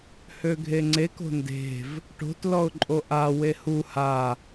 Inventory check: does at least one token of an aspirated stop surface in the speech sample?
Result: no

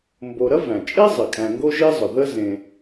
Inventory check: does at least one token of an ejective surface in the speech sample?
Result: yes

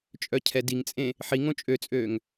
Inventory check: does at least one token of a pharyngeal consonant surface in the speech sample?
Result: yes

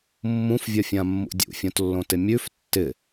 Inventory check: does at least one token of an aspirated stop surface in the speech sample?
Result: no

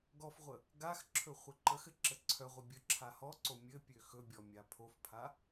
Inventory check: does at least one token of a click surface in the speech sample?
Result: yes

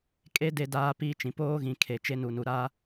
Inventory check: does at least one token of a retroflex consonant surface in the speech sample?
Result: no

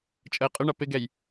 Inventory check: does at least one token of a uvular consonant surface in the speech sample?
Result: yes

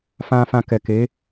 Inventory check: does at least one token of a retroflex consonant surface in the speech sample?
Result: no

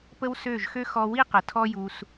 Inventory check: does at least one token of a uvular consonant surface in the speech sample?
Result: yes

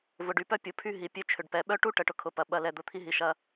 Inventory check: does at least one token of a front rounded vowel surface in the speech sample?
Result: yes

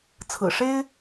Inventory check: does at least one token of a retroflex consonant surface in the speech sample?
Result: yes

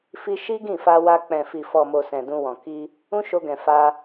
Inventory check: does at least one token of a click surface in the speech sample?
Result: no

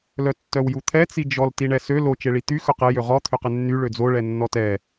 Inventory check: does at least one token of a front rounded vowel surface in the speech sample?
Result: yes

